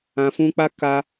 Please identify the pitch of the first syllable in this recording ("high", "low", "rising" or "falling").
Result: low